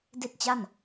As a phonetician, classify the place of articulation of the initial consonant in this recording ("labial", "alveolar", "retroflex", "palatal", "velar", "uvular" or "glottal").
alveolar